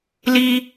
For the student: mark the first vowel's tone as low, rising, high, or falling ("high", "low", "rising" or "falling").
high